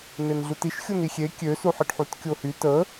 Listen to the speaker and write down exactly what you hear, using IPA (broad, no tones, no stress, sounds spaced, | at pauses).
n e n ɮ u t i ʃ xʲ o n i xʲ e kʲ ø s u ħ i ɖ ħ u t kʲ o h y t ə